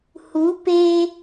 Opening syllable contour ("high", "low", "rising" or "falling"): rising